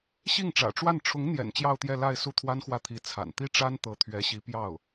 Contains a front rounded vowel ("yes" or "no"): no